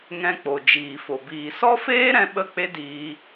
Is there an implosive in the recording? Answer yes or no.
yes